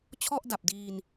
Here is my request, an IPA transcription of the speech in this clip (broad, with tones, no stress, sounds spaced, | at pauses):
t͡ɕʰ ɔ˥˩ ʔ d a˨˩ p̚ d iː˧ n